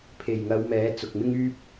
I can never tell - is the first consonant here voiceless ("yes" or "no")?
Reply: yes